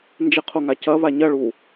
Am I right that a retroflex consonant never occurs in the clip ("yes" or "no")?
no